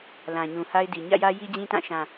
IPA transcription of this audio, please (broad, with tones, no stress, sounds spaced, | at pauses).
l ã˨ ɲ ũ˨ h a˦ ɪ̯ d i˨ ɲ ä̰˦˨ j ä˦ j i˦ d͡ʑ ĩ˦ t ã˦˨ ʃ ã˨